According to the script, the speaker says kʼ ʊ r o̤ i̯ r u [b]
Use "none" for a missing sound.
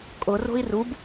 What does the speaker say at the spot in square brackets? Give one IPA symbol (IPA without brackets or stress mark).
b